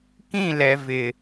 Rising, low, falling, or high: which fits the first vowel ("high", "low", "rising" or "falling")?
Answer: falling